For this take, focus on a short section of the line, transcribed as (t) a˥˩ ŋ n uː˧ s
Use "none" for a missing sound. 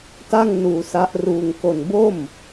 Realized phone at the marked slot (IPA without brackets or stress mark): t